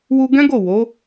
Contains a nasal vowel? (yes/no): yes